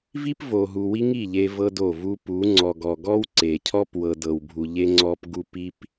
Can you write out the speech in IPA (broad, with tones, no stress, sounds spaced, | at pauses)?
v i˦ p v o˨ ɦ u˨ w i˦ ŋ i˦˨ ʎ e˦ v ɤ˦ d o˦˨ v u˦ p u˨˦ ŋ͡ǀ ɔ˨ ɡ ɔ˨ ɡ ɔ˦ w ǀ e˨ cʰ ɔ˦ p w ɤ˨ d ɤ˨ w bʱ u˨ ʎ e˦ ŋ͡ǀ ɔ˦ p ɡ u˦ p i˦ p